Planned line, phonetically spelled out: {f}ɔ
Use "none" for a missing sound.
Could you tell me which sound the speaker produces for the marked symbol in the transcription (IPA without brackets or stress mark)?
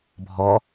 bʱ